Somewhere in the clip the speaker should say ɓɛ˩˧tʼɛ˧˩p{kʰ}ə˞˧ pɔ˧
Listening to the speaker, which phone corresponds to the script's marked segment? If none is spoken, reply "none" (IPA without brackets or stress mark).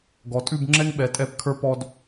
kʰ